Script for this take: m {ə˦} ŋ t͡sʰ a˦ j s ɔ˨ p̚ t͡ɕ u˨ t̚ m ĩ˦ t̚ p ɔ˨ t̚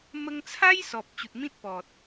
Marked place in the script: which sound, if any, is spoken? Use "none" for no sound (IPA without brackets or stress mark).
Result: ə˧